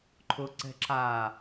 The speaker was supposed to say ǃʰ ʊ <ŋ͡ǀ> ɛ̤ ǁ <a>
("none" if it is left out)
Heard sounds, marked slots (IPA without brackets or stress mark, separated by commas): ǀ, a